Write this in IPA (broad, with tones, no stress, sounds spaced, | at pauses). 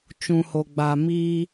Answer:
t͡ʃ ũ˨ h o˨ ɡ͡b a˨ m iː˧